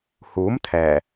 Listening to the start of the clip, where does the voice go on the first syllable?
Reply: rising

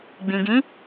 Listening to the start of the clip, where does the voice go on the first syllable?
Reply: low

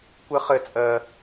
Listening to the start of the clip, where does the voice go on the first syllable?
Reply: high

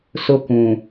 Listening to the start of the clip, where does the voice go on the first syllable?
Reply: high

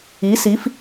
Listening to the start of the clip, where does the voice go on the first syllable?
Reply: rising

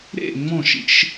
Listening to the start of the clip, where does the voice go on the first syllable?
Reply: falling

